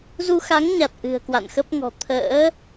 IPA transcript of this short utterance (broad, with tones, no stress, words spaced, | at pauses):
zu˧xa˨˦ŋɲa˨˩t̚ ʔɨ̤˨˩ə̯kwa̰˧˨nxə˦˥p̚ŋɔ̤˨˩ t̪ʰə̰ː˧˥